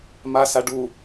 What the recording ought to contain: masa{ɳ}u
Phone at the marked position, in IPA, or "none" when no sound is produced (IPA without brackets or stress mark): ɖ